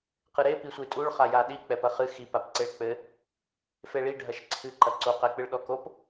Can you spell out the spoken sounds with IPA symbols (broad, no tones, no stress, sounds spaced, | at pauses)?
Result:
q ɨ ɾ e p i sʷ ɨ tʼ u ɭ χ a j a ɗ i k͡p ɛ p ɐ χ ɨ x i p a p ǀ e ɭ k͡p ɘ | f e ɭ i ɖʱ ɐ ʃ ǀʰ ɨ ǃ ɐ ǀ o q ɛ k͡p ɨ ɭ ɗ ɔ k o p